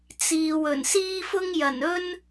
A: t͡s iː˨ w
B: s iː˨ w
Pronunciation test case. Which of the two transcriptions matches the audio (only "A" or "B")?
A